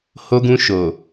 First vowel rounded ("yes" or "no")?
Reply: yes